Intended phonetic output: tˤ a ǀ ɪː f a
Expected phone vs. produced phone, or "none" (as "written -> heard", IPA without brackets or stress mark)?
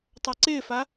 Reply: none